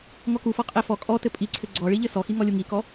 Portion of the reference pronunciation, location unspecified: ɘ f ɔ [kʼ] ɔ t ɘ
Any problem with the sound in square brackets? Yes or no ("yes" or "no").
no